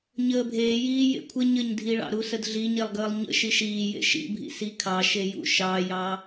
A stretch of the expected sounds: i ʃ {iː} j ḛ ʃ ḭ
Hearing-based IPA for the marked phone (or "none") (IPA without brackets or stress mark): iː